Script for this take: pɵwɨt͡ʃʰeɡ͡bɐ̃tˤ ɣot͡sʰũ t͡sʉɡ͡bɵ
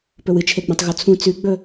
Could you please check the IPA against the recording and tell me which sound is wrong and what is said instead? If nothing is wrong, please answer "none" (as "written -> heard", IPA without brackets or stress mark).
none